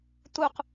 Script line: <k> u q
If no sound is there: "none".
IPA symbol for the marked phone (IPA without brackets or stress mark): t̪